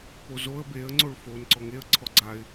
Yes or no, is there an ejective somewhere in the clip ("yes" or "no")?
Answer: no